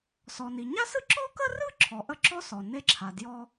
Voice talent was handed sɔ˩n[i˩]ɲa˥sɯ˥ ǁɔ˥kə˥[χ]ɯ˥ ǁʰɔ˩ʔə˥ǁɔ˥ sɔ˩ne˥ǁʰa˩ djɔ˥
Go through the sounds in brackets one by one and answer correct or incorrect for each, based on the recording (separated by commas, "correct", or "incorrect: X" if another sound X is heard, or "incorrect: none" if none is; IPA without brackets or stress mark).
correct, incorrect: r